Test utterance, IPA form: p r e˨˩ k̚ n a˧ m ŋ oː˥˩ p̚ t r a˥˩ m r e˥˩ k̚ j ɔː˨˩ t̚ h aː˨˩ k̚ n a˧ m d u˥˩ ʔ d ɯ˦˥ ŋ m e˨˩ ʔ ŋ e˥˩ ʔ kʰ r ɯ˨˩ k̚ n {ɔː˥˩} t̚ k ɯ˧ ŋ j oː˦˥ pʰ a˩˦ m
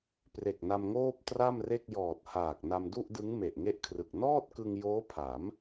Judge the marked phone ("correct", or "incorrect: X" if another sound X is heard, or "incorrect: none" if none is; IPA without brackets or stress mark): correct